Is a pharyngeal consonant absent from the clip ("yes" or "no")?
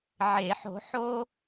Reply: no